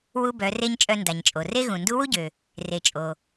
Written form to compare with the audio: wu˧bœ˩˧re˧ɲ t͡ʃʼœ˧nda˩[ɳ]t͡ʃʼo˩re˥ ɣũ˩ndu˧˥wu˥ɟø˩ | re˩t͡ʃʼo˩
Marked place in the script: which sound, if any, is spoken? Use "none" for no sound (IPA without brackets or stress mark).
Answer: ɲ